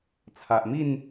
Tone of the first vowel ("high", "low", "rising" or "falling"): low